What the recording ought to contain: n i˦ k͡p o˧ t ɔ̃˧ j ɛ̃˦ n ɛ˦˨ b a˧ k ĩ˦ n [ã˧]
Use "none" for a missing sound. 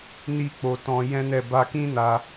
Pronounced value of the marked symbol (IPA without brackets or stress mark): a˧